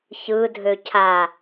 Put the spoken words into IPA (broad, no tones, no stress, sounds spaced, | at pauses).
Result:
ç ɯ dʱ ø cʰ a